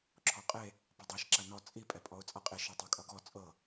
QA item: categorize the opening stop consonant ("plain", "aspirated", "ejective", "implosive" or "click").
click